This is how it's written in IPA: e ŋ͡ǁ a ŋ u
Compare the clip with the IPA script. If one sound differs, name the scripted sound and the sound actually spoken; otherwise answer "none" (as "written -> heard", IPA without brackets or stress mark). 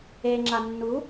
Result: ŋ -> nː